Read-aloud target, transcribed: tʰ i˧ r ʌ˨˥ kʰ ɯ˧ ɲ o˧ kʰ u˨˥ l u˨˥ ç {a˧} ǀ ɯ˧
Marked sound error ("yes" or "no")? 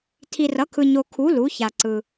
no